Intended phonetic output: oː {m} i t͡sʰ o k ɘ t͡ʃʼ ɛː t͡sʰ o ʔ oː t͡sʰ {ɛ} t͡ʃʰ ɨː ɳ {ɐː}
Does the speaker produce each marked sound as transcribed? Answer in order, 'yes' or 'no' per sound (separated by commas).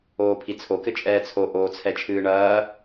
no, yes, yes